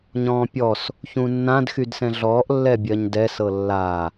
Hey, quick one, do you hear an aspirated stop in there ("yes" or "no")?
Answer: no